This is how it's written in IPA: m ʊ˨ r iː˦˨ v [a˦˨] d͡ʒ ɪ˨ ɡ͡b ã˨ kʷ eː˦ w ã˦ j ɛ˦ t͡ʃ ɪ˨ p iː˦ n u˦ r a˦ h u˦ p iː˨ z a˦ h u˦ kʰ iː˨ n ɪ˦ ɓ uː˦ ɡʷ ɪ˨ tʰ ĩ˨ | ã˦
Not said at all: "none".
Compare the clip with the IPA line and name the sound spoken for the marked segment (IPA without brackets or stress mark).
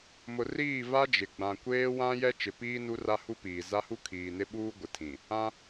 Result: a˦